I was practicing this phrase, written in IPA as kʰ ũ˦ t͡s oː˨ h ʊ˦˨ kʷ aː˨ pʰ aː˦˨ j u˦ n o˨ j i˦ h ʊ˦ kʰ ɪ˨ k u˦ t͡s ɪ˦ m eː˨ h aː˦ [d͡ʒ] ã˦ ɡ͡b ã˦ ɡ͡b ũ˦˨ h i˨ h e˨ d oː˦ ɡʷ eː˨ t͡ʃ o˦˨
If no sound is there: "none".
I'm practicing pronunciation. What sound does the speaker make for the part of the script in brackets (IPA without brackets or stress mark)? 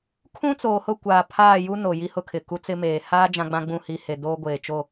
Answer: d͡ʒ